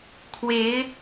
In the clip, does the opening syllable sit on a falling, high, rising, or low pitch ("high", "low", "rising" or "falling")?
rising